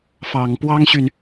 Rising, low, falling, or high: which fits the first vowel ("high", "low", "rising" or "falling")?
low